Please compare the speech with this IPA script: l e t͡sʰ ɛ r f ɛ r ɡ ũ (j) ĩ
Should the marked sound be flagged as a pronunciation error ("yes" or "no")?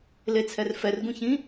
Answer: yes